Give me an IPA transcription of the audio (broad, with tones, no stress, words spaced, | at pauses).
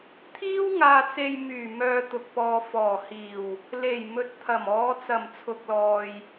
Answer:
t̪ʰiː˥w ŋaː˧t͡se˧jmyː˨˩ mœː˧t̪ʊ˨k̚ pɔː˨ fɔː˨˩hiː˨˩w | le˨˩j mɵ˨t̚t̪ʰɐ˨˩mɔː˨˧ t͡sɐ˨˩mt͡sʰʊ˨k̚lɔː˨j